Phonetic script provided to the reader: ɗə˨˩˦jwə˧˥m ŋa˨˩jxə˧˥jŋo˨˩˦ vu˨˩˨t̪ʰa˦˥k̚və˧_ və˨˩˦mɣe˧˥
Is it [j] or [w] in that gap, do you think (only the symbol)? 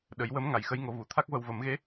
w